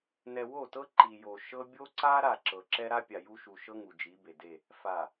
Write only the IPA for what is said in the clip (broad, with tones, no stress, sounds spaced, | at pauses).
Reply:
n ɛ˨ w o˦˨ t ɤ˦ ǃ i˨ j o˨ ʃ ɤ˦ bʲ o˦ ǀ a˦ ɾ a˦˨ ǁ ɤ˨ ǁ ɛ˦ ɾ a˦ pʲ a˨ j u˦ ʃ u˨ ʃ ɤ˦ ŋ u˨ d͡ʒ i˨˦ b e˨ d e˦˨ | f a˨